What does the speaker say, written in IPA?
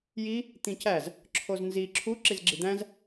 ji | t̪ĩcæz | ǁʰoznzi ǁʰu ǁizɡ͡ǁid̪æ̃z

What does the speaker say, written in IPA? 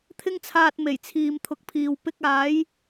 t̪ʰɪ˧ŋt͡sʰaː˨t̚ me˨˩jt͡sʰiː˨mt̪ʰʊ˨k̚pʰiː˨w pɪ˧k̚aː˨˥j

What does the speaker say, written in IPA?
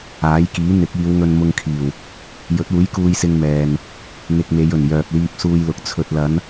aː˨˥jkiː˨˥ n̪ɪ˨˥k̚iː˨˧wŋɵ˧n mʊ˧ŋkʰiː˨˩w | jɵ˨˥t̚uː˨˥j kuː˧jsɪ˧ŋ mɛː˨n | n̪ɪ˧k̚me˨˧jɵ˨˩n jœː˨p̚liː˧p̚suː˧jlʊ˨k̚ t͡sʰɵ˨t̚lɐ˨˧n

